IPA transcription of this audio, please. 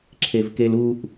ǁʰ e v k e l u ʔ

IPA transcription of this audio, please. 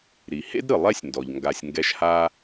ɾ i˩ h ḛ˥ d ɾ ɯ˩ lˠ ɛ˥ sʲ n d ɔ˩ ʎ ŋ ɡ a˨ sʲ ŋ ɡ ɛ˦ ʃ h a˥

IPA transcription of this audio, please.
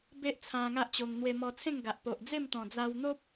b e˦ ʔ t͡sʰ ã˧ ŋ a˦ ʔ t͡ɕ o˧ ŋ n̪ w e˧ m ɔ˧ t͡sʰ ẽ˥˧ ŋ ɡ a˨ ʔ p o˨ ʔ d͡z e˥˧ m t̪ ɔ̃˨˩ d͡z a˧ w n̪ o˦ p̚

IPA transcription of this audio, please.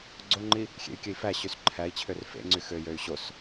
ɡ͡ǀ o ŋ͡ǃ i | xʲ ḛ y̯ kʲ ø i̯ f æ ɕ y s ǃʰ æ i̯ t͡ɕʰ ø r f ḛ ŋ͡ǀ y x ø j ø y̯ ɕ o s

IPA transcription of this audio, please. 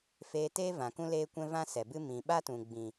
f eː˧ t eː˦ v ã˨ k ũ˦ l eː˦ kʷ ɛ̃˦ v ã˦ s ɛ˨ b ɨ˦ m ĩ˨ ɓ a˦ t ũ˨ ɡ͡b ĩ˨

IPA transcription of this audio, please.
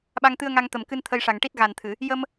ɓ a˧ ŋ t̪ ɨ˧ ə̯ ŋ a˧ ŋ t̪ ə˨˩ m k ɨ˧ n t̪ʰ ə˧ j ʂ a˨˩ ŋ ʈ i˦˥ t̚ ɣ a˨˩ n t̪ʰ ɨ˨˩˨ | j ə˧ m

